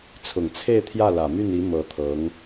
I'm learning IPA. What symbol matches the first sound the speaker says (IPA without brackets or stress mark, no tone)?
t͡sʰ